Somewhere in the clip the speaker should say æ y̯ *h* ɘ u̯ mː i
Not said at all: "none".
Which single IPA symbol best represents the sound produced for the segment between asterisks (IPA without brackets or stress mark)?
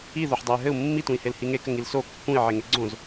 ɦ